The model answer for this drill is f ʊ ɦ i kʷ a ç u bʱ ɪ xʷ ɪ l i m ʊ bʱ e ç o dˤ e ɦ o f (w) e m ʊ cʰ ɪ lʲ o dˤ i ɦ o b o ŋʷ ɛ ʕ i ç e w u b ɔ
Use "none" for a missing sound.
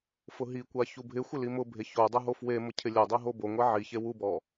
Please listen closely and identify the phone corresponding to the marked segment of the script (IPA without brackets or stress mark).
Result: w